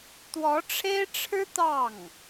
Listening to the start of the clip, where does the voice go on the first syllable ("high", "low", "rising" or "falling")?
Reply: rising